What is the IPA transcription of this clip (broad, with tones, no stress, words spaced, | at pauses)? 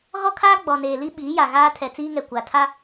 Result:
ɣɔ˦kʰaː˦ ɡ͡bɔ˨neː˨ li˦ ɓiː˨˦ja˨ ɣaː˦ tʰɛ˨t͡siː˦ŋɛ˨ kʷa˨ tʰa˦